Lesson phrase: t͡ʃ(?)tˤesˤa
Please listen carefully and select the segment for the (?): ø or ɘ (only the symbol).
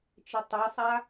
ɘ